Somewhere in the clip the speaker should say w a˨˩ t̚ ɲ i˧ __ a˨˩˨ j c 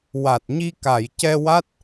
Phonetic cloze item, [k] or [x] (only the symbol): k